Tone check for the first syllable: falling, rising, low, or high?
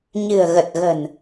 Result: low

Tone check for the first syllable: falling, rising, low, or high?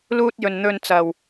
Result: high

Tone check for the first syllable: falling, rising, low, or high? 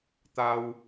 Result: high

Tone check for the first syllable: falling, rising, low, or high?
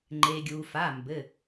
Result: low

